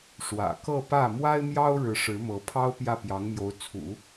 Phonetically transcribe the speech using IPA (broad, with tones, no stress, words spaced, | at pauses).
ʂwä̰˨˩kɤ˥˧ pä˥˩ mwa˥ɪ̯mjɑ˥ʊ̯ɻɻ̩˧˥ ʂɻ̩˧˥mɤ˧˥pʰɑ˥ʊ̯ pjä˥˩pjɑ˧˥ŋmjo˧˥ʊ̯ t͡sʰṵ˨˩˦